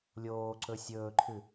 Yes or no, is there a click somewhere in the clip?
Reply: yes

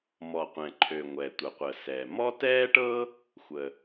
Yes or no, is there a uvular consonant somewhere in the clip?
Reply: yes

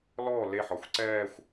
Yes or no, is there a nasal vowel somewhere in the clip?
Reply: no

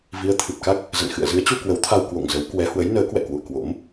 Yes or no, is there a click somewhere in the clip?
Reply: no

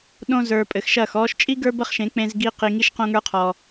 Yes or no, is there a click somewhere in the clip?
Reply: no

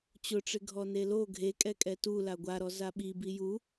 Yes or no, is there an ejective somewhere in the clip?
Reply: yes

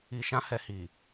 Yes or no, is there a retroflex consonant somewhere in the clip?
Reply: no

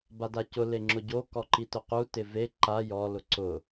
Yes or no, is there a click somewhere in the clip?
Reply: yes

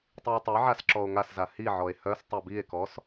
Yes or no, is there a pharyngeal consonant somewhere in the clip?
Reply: yes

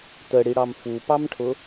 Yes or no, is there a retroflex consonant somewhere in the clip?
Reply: yes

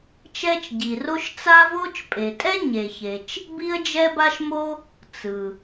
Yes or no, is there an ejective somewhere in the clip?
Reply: yes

